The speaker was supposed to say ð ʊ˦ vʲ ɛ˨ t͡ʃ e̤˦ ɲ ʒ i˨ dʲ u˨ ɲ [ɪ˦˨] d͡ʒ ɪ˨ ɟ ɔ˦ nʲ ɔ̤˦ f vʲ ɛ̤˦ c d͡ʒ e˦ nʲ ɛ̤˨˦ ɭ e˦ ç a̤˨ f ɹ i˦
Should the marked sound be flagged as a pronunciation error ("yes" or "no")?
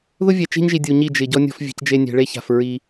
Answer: yes